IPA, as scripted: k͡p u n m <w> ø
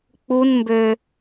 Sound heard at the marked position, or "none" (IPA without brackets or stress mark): b